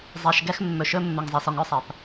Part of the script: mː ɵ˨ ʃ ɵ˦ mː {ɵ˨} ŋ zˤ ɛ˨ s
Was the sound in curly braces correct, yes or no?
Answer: yes